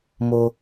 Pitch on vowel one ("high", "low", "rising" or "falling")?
high